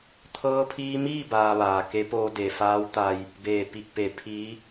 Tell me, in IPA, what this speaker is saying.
t̪ʰɤː˧pʰiː˧miː˥˨ baː˧ʋaː˩ ke˧˥poː˧ de˩faː˧˥wt̪a˧j | beː˧˩ pi˧˩k̚pe˩˧ pʰiː˧˥

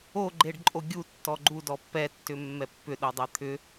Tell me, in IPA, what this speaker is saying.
oɡ͡ǃeɖǃʼo ɡʲutːɔ ɡ͡ǃudɔ pːɛtːʏmːɛ pːʏɗodˤɛ t̪ʰʏ

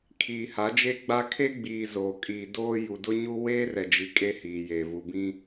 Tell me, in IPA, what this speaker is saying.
kʰiː˨ha˨˦d͡ʒe˦ɡ͡ba˦ kʰe˦ɡ͡biː˨ zoː˨kʼiː˨ doː˦ ju˨dʊ˦ɲu˦ weː˦rɛ˨d͡ʒi˨ kʼe˦hiː˨je˨ vu˨bĩ˦

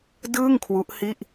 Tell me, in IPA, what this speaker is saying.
dɯː˥˩ŋkʰwu˦˥ʔhi˥˩ʔ

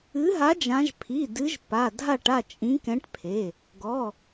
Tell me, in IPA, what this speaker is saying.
ɨ˨˦ɦa˨˦ d͡ʒã˨˦ʒ pʰi˩˧˩dɨ˨˦ʒ pa˩˧˩dʱa˥˨ʈ a˥˨t͡ʃʼĩ˨˦kɛ̃˨˦ʈpʰe˩˧˩ | ɡɔ˩˧˩

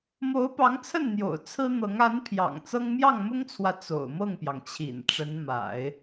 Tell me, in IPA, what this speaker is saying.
mo˧˥ʊ̯pɑ˧˥ŋt͡sʰə˥˩nn̪jo̰˨˩ʊ̯ t͡sʰɹ̩˥n̪ɤ˧˥ŋ a˧˥npʰjɑ̰˨˩ŋ t͡sɤ˥ŋ mjɑ˥˩ŋmʊ˥ŋt͡sʰwä˨ t͡so̰˨˩ʊ̯mɤ˥˩ŋpjɑ˩ŋt͡ɕʰḭ˨˩n ʈ͡ʂə˧˥nma̰˨˩˦ɪ̯

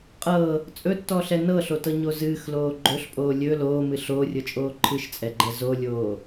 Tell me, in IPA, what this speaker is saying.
qʼɤ | t͡sʼɵtːɔɬɛ nɤɬotɤɲo zɨːxloː ɡ͡ǃɵɬpʼoː lʲɵ loːmɨ ɬoːrʲɤt͡ʃʼoː ǃʰɨʃt͡sʼɛɡ͡ǃɛ zolʲoː

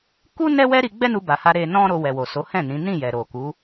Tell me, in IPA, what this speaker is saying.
ku˦ nɛ˦wɛ˦ɾi˧ ɡ͡bɛ˦nu˧ba˨ha˧ ɾe˧nɔ̃˦ɾo˧ wɛ˨wo˨so˨˦hɛ̃˦˨ nĩ˨˦ nĩ˦˨ jɛ˨ɾo˨ku˨˦

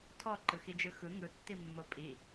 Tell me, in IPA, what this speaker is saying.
tʰɔǃɯxid͡ʒɯ xɯ ŋɯtːimːo pʼi

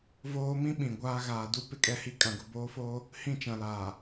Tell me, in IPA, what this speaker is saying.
voː˦ mĩ˦ ɓĩ˨ɡʷaː˦ ɣaː˨du˦ pɪ˦kʼɛ˦hi˦ kʼã˨ɡʊ˨boː˦foː˦ | hĩ˦˨t͡ʃã˨laː˨

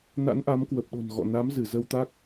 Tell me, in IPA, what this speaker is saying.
na̰˧˥nʔa˨˦mkwə˨˩p̚ɗo̤˨˩n ɣɔ̰˧˨ na˨˦m zɨ˧˩ zə˧wt̪a˦˥k̚

